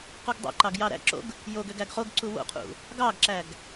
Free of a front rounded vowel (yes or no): no